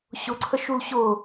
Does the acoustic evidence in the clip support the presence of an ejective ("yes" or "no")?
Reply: no